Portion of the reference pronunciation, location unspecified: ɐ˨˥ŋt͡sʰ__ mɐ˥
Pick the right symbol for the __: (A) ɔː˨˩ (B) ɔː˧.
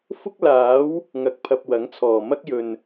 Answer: A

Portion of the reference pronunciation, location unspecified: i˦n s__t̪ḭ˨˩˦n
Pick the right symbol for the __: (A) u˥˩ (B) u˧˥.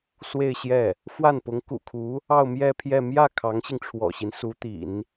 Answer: B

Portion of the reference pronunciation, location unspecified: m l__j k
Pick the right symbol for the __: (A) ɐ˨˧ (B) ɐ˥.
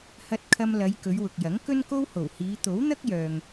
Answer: A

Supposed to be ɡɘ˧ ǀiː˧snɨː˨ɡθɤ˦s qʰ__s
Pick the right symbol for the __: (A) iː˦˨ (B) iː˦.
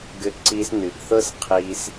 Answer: B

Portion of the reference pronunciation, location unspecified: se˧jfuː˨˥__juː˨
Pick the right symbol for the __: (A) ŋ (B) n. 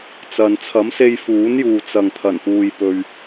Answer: B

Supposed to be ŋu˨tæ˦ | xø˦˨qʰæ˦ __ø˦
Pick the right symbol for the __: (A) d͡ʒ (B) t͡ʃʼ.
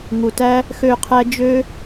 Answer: A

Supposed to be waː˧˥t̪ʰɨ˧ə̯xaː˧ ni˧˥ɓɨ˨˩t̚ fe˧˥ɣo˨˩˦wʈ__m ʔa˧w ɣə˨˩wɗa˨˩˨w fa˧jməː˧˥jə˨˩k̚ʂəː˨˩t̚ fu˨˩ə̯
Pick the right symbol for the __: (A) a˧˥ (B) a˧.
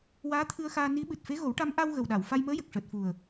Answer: A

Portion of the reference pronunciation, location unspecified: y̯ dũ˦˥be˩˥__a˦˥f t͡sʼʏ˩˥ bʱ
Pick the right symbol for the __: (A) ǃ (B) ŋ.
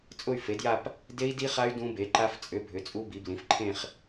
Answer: A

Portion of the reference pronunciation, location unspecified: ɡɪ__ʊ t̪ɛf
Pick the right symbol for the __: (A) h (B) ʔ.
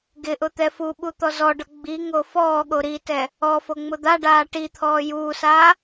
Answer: B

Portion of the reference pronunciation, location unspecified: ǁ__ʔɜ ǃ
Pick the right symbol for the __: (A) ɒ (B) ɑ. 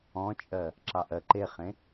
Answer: B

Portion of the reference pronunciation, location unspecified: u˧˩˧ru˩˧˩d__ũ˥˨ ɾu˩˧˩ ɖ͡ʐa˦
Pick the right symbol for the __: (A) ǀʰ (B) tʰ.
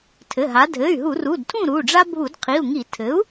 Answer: B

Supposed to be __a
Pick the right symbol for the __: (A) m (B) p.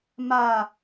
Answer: A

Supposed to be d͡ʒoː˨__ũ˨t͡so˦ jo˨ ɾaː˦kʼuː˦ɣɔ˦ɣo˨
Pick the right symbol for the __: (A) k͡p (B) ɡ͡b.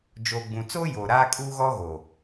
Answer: B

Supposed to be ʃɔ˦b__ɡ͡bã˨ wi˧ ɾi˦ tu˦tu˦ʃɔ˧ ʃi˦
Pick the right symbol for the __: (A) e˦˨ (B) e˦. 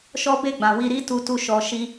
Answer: A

